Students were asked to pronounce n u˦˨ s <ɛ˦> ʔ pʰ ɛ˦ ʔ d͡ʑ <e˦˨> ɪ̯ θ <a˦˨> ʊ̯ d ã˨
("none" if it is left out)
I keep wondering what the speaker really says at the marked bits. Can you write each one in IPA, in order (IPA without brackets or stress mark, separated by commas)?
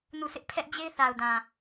ɪ˦, e˦, a˨